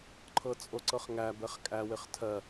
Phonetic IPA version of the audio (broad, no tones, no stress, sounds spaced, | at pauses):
ǃʰ ɤ t͡sʼ o ǀ ɤ χ ŋ æ b ɛ χ kʼ æ w ɪ χ tʰ ɜ